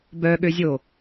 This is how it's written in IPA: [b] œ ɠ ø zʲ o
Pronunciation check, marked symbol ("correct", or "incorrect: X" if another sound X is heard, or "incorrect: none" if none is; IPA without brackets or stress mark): correct